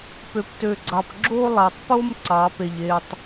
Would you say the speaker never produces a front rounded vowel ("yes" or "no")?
no